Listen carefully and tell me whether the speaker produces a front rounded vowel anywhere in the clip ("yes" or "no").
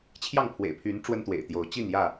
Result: yes